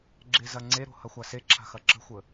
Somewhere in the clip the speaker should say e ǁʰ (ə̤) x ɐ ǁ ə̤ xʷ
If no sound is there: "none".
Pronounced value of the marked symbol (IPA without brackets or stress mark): a̤